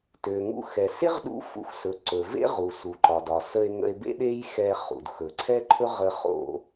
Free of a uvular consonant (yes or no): no